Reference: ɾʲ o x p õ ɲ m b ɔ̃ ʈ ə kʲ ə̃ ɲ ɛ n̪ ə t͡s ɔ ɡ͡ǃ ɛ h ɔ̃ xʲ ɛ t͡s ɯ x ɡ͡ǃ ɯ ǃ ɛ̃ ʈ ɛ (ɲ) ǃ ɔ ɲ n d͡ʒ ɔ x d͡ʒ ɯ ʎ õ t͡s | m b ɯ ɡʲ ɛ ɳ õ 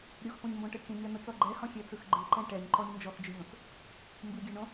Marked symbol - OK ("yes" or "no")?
yes